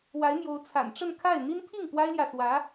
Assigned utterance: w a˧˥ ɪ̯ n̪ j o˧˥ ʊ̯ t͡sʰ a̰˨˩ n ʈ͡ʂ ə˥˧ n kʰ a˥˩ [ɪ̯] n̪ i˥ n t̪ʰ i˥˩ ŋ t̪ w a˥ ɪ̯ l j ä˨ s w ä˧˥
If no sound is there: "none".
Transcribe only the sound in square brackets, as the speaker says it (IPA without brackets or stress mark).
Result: ɪ̯